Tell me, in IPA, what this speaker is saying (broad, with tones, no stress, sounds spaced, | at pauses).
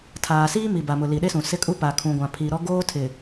tʰ aː˨ s iː˦ m i˨ b a˨ m ʊ˨ l i˨ ɗ e˦ s ũ˨ s ɪ˦ kʼ u˦ p a˨ kʰ ũ˨ ɡʷ ã˨ pʰ i˨ ɾ ɔ˦ ɡ oː˦ tʰ ɪ˨